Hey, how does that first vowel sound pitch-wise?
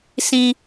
low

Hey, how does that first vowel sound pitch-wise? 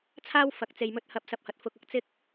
high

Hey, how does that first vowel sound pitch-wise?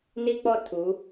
high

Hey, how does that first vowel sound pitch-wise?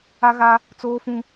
high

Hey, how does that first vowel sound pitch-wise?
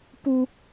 high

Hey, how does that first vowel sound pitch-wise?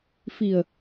low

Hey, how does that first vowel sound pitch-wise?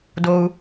high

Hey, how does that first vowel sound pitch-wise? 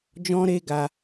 high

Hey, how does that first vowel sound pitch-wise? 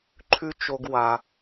high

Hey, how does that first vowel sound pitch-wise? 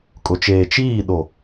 low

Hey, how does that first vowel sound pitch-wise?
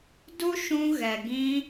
high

